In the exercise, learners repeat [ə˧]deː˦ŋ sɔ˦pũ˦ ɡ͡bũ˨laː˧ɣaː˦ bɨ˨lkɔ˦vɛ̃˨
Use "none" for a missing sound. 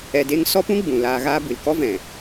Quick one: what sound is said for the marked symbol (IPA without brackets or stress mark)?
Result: ɛ˧